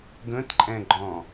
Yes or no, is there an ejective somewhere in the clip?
yes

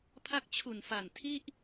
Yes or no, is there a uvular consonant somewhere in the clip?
no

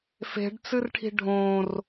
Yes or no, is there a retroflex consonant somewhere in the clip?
yes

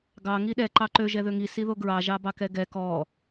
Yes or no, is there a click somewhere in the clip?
yes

